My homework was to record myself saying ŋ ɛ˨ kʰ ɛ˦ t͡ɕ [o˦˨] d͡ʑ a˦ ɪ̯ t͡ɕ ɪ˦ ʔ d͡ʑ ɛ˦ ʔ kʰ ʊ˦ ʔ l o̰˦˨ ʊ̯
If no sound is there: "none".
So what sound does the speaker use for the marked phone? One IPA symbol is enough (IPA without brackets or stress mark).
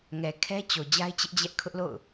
o˨